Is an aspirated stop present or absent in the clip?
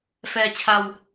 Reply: present